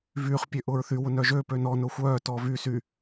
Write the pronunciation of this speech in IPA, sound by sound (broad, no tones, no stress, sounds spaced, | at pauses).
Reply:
v yː χ pʲ ø ʔ ʊː ɹ θ y w ʊ n œː ʒ øː p ø n ɔ n ʊː xʷ œː t ɔː v y s y